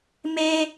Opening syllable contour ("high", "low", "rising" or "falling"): high